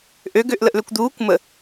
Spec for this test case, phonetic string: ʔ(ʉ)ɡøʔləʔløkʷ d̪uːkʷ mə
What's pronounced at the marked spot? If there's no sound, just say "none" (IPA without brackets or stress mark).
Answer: ø